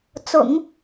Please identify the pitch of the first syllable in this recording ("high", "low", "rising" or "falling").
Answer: low